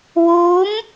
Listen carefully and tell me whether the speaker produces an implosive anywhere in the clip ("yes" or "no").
no